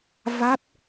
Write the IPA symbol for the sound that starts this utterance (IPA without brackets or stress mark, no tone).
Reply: v